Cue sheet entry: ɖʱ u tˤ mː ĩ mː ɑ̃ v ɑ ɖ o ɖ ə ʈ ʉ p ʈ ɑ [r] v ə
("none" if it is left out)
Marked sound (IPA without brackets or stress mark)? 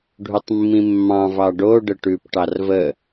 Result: r